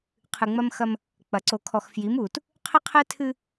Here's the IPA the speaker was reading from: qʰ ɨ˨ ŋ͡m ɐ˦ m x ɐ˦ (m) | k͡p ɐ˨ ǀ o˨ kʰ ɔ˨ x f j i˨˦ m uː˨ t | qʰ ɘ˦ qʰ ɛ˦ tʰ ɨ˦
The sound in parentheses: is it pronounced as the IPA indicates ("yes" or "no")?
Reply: yes